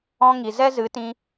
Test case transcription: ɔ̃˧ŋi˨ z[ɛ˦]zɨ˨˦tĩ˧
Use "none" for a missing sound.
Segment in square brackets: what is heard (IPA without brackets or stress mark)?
ɛ˦